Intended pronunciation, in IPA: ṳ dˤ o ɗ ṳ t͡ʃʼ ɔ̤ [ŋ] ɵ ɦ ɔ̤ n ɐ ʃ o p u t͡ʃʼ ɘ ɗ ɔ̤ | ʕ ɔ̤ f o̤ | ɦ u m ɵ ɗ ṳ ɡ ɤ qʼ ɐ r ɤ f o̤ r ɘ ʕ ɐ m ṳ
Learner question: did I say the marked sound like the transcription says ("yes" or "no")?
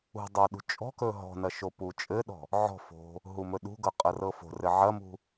no